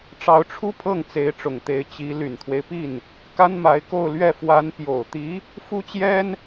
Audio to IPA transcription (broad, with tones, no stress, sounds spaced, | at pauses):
ʈ͡ʂ ɑ˧˥ ʊ̯ ʈ͡ʂʰ u˥ pʰ ɤ˥˩ ŋ t͡s e˧˥ ɪ̯ ʈ͡ʂ ʊ˨˩ ŋ t̪ e˧˥ ɪ̯ t͡ɕ i˧˥ l y˨˩ n t̪ʰ w e˦ ɪ̯ p i˥˩ n | k a˥ n m a˧˥ ɪ̯ k o˥˧ ʊ̯ l ɥ ɛ˥˩ f w a˧˥ n p j o˨˩ ʊ̯ t̪ i˧˥ | f u˥ t͡ɕ j ɛ˥ n